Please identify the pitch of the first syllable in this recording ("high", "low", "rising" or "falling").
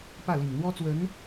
falling